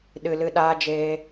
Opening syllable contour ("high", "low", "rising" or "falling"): low